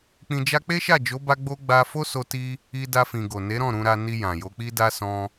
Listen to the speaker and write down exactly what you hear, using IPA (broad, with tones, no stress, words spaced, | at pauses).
k͡pĩ˧d͡ʒa˦ k͡pe˦ʃa˦˨d͡ʒo˨˦ ba˦ɡ͡bo˦ ɡ͡ba˧ fo˦so˧ti˧ | i˧da˧ fĩ˨ ɡo˨ ne˨˦ɾɔ̃˦˨ ɾũ˧ɾa˧ ni˧jã˨jo˨˦ k͡pi˧da˧ sɔ̃˧